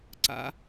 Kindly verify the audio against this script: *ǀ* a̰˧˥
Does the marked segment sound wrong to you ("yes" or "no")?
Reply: no